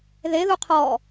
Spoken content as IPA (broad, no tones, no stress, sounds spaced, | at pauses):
ð e ð u qʰ ɔ